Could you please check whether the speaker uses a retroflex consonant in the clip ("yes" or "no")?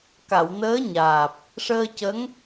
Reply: yes